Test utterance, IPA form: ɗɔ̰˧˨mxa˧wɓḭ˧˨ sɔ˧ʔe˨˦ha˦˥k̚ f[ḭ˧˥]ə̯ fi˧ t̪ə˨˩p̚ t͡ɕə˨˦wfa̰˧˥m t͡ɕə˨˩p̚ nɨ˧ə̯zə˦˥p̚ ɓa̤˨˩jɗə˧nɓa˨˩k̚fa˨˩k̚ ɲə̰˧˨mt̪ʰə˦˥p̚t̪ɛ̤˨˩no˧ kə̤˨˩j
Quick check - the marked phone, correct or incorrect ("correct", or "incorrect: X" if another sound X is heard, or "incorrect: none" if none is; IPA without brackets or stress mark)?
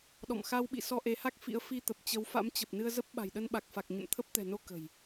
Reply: correct